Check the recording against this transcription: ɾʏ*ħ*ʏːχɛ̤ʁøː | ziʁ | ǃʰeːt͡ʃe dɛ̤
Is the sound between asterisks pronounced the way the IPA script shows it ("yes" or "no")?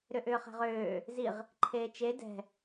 no